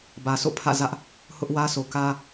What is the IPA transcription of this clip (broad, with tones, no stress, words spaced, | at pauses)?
bä˨sʰo̰˦˨pʰä̰˦˨ zä˦ʔ | hʊ˦ʔwä˦sʰo˨kä˦